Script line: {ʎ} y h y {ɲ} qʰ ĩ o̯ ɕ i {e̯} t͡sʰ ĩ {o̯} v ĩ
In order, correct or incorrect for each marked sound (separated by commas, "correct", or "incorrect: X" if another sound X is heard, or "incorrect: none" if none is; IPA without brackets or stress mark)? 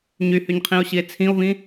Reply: incorrect: ɲ, correct, correct, correct